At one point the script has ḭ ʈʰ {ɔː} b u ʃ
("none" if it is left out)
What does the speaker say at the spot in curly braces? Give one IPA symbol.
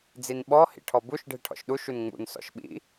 ɔ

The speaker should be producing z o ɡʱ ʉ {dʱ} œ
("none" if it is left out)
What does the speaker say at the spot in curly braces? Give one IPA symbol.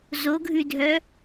dʱ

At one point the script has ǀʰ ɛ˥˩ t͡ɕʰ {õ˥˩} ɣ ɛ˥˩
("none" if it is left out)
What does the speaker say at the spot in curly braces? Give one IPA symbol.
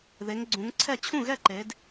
ũ˥˩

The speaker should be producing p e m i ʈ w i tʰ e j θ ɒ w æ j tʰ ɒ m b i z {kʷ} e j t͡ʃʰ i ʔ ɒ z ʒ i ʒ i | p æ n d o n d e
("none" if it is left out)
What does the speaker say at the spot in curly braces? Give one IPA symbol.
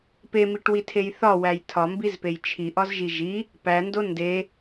p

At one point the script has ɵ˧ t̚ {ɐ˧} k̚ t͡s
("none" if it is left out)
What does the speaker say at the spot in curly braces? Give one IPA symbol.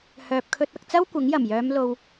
ɐ˧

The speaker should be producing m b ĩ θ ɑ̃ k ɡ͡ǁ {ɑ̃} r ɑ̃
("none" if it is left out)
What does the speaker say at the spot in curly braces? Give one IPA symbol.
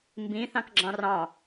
ɑ̃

